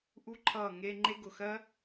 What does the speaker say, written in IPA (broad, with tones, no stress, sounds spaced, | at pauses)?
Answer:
ʔ u˦ ǃʰ ʌː˦˨ ŋ e˧ ŋ͡ǃ e˦ ɡ ʊ˧ x ɜ˦